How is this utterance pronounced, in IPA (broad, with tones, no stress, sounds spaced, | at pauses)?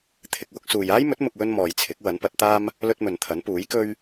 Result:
t̪ʰ ɪ˧ k̚ w ʊ˧ k̚ s uː˨ j aː˥ j m ɵ˨˥ t̚ m ʊ˧ k̚ w ɵ˥ n m ɔː˨ j t͡sʰ ɪ˨˥ k̚ w ɐ˨˥ n p ɐ˨˥ t̚ t̪ aː˥ m | l ɵ˧ t̚ m ɵ˨ n t̪ʰ ɐ˨˥ n p uː˨˥ j k ɵ˥ ɥ